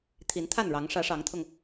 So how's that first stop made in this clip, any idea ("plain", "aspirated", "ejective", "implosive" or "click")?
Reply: aspirated